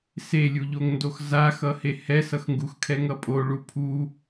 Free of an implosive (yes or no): yes